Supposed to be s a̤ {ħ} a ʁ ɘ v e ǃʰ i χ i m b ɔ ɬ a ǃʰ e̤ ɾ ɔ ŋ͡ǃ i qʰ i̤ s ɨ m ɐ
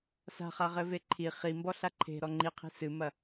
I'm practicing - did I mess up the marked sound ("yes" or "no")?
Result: yes